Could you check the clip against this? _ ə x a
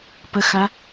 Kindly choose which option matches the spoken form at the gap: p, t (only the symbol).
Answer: p